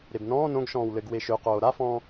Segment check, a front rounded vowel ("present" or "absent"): present